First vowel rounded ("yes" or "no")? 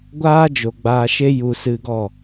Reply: no